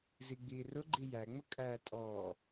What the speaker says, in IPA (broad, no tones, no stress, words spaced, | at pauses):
ziɡ͡biːrʊɡ͡ǃi jæŋ͡mʊ kʼæ tʼɔː